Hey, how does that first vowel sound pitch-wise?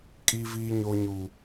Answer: high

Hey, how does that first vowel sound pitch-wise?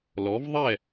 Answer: rising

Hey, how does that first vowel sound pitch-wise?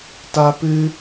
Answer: high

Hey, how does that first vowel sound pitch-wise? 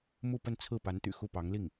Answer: falling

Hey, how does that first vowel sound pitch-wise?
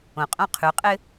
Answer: low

